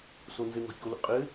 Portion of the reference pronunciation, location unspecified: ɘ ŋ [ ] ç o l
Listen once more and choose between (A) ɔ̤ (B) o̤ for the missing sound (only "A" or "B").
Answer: A